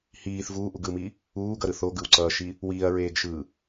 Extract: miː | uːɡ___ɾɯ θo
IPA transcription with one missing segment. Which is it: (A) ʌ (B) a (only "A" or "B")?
A